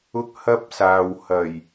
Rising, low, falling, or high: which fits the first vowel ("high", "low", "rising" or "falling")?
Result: high